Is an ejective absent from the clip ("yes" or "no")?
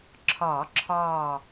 yes